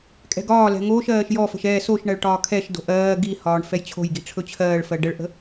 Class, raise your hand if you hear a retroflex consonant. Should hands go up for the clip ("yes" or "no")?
yes